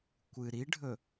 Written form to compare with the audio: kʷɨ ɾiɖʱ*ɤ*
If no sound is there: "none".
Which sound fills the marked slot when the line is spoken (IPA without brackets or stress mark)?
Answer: ɵ